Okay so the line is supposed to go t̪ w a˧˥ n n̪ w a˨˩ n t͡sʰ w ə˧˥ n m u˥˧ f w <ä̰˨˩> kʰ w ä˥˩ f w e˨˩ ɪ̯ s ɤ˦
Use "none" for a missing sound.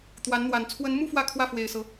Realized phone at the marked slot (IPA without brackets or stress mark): ä˥˧